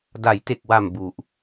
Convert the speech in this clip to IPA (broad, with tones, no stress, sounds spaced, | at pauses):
d a˩˦ j t e˨˩ k̚ w a˨˩ m b u˨˩ ʔ